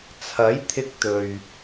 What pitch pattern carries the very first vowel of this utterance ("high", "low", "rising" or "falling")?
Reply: rising